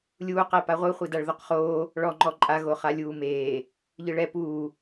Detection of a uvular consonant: present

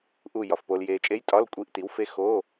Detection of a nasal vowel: absent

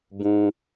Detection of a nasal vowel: present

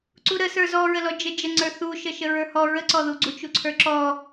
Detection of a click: present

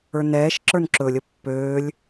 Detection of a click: present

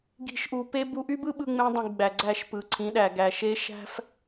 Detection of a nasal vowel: present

